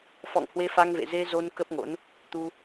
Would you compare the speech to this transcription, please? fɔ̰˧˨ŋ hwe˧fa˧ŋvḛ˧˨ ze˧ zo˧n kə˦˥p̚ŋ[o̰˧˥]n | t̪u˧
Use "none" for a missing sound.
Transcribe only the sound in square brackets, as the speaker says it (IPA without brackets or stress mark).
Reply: o̰˧˥